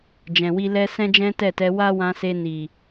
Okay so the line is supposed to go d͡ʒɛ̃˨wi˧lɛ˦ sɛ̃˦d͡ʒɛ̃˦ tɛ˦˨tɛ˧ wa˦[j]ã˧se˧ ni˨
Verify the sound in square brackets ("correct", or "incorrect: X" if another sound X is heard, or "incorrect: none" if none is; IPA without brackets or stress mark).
incorrect: w